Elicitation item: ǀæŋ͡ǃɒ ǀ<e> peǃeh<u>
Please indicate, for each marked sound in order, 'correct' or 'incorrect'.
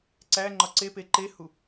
correct, correct

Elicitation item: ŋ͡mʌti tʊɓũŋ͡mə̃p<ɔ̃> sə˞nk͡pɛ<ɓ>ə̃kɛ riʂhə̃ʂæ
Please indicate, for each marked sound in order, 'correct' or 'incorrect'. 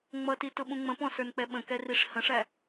correct, correct

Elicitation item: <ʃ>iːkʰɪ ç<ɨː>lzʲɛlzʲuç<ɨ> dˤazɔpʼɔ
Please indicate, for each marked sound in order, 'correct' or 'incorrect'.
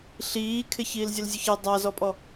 incorrect: ɬ, incorrect: iː, incorrect: ɛ

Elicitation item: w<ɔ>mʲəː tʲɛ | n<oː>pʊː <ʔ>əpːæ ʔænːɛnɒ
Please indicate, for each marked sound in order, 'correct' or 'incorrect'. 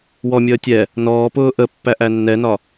correct, incorrect: ɔː, correct

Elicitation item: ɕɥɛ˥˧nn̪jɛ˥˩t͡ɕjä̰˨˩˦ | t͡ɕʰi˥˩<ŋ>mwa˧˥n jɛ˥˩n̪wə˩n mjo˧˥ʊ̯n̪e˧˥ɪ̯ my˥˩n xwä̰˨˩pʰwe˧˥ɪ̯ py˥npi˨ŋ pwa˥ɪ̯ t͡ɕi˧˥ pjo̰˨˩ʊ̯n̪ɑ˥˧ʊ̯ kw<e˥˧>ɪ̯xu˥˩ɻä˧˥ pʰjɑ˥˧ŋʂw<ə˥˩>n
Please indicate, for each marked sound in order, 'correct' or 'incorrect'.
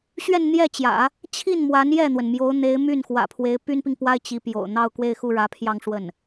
incorrect: n, correct, correct

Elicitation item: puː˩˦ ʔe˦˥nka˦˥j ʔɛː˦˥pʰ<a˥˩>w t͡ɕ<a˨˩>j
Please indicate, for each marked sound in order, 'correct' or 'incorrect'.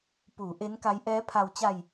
incorrect: a˧, incorrect: a˧

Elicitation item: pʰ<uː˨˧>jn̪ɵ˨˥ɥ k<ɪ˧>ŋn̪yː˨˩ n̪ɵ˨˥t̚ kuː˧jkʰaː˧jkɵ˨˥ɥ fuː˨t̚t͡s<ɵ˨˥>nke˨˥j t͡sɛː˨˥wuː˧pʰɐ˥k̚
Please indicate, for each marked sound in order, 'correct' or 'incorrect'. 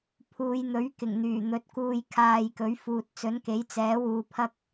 correct, incorrect: ɪ˨˩, correct

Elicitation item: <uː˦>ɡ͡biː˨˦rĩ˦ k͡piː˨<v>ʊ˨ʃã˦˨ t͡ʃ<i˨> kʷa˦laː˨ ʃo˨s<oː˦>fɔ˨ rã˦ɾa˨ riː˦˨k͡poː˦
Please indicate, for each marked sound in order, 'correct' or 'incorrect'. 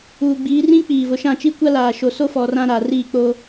incorrect: uː˨, correct, incorrect: i˦, incorrect: o˦

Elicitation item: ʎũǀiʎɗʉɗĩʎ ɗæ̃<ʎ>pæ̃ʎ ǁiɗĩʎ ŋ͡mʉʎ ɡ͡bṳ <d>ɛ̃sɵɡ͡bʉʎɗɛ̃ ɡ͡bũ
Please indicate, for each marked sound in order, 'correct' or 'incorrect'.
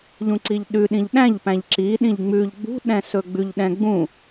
correct, incorrect: ɗ

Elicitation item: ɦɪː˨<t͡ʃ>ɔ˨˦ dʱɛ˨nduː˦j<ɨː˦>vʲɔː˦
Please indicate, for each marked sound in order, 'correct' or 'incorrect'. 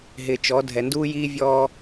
correct, incorrect: iː˦

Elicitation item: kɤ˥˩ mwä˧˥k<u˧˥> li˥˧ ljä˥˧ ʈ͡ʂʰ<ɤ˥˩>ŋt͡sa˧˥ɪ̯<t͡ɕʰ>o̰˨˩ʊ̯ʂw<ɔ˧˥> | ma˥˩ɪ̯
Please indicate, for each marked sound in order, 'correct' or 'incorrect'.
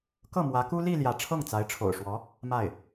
incorrect: u˥, correct, incorrect: ʈ͡ʂʰ, correct

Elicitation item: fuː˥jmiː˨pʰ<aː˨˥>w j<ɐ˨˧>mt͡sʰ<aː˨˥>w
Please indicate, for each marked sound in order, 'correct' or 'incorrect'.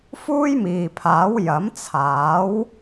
correct, incorrect: ɐ˨˥, correct

